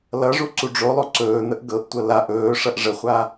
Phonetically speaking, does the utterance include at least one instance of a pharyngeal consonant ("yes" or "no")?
no